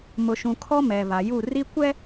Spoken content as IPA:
m ʊ˨ ʃ ũ˨ kʰ ɔ˦ m ɛ˨ β a˨ j u˦˨ r i˦ kʷ ɛ˦

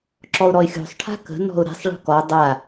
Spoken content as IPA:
ǁ ɔ ʊ̯ ɾ ɔ ɪ̯ xʲ o̤ sˤ ʈʰ a̤ k ə̤ n ɔ̤ ʊ̯ ɾ ɛ̤ sˤ ɭ ɔ̤ k ɔ dˤ a

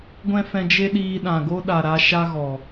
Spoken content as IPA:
ɡʷ ɛ̃˦ f ɛ̃˧ d͡ʒ e˦ ɗ iː˧ ɗ ã˨ ɡ o˦ ɗ a˨ ɾ a˦ ʃ a˦ ɣ ɔ˨

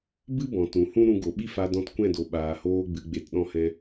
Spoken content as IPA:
b ɨ˦ b ɔ̃˨ t ũ˨ h ũ˦ ɾ ũ˧ ɡ o˨ ɓ i˦ f a˧ d ɔ̃˧ t kʷ ɛ̃˦˨ d o˨ ɓ aː˨ h oː˧ ɡ͡b ɨ˨ ɡ͡b e˨ t ɗ ɔ̃˧ h ɛ̃˧

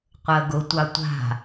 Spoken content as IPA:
qʷ əː ɡ ʊ tʷ ɑ tʷ a̤

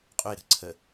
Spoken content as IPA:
qʼ ɵ ɪ̯ ɾ ə̤ ǀʰ ə

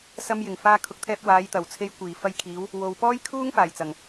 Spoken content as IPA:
s ɐ˧ m j ɪ˨˩ ŋ f aː˧ kʰ ʊ˨ k̚ t̪ʰ ɛː˧ p̚ w aː˨˧ j t̪ ɐ˨˩ w t͡sʰ e˧ j kʷ iː˨˩ f ɐ˧ j kʰ iː˨˧ w | w o˨ w p ɔː˥ j kʰ uː˥ ŋ f aː˨˩ j t͡s ɐ˨˩ ŋ

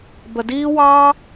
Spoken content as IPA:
b ə˧ d iː˦ w ɑː˦

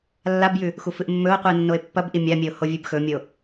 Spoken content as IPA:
lː a b j ʉ | x u f ɨ ʔ mː ɵ o̯ qʷ ɨ e̯ nː o e̯ pː ɐ b ʔ i mʲ a mʲ e o̯ h o vʲ ʉ b x ɵ mʲ o

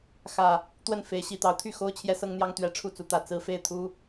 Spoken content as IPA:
x ä˨˩ | t̪ w ə˥˨ n f e˨˦ ɪ̯ ɕ i˨˩ t̪ ɑ˨˦ ʊ̯ t̪ʰ y˥˨ x o˦ ʊ̯ t͡ɕʰ j ɛ˦ s ɤ˦ ŋ n̪ j ɑ˦ ŋ t̪ ɥ ɛ˨˦ ʈ͡ʂʰ u˥˨ t͡s u˨˦ t̪ ä˨˩ t͡s ɹ̩˦ f e˥˨ ɪ̯ t̪ʰ u˦

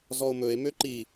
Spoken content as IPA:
z ɔ o̯ m ɵ e̯ m ø ǃ i

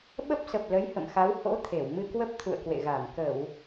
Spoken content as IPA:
ɓ ə˦˥ p̚ s ə˨˩ p̚ l ə˨˦ j h ə̰˧˨ m x a˨˦ w h o̰˧˥ t̪ʰ e˧˩ w m ɨ˧ k w ə˦˥ p̚ t̪ʰ ṵ˧˨ ə̯ k w ḛ˧˨ ɣ a˧˩ m k ə˧˩˨ w

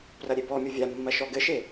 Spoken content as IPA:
p r ɐ ɾʲ e b ɔ mʲ o vʲ a mː ɐ ʃ ɔ ɡ ɘ ʃ e

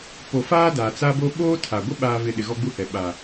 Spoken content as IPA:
p o˨ f aː˦ d aː˨ t͡s aː˦ b o˦ ɓ oː˦ tʰ a˨ ɡʷ ɪ˦ ɓ aː˨ v ɪ˨ ɗ ɪ˨ ɣ ɔ˦ ɡ͡b u˦˨ h ɛ˨ ɓ aː˨

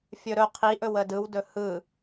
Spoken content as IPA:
fʲ ɵ ɾ ɵ qʰ i ʔ ɵ w ə d ɯ w d ɵ h ɯ

